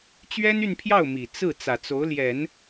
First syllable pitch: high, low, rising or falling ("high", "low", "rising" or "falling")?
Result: high